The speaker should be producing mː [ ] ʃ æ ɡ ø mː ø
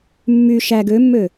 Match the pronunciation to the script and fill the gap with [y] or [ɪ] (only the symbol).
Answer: y